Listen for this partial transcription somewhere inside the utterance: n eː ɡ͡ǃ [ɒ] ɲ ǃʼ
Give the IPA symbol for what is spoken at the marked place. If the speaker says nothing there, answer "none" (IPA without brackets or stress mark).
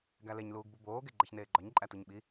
ɒ